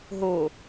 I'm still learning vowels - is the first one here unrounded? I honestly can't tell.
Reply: no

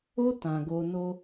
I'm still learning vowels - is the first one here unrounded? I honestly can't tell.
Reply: no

